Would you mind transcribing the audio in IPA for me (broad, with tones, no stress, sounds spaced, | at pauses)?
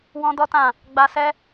w ɔ̃˦ d ɔ˦ t ã˦˨ | ɡ͡b a˧ s ɛ˦